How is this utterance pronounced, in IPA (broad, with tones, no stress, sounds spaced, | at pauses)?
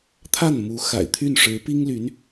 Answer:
t̪ʰ a˥˩ n m u˧˥ x a̰˨˩ ɪ̯ t̪ʰ y˥˩ n ʂ ɻ̩˧˥ p i˥ ŋ l y˧˥ n